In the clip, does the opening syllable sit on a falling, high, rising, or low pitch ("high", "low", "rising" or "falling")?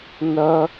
high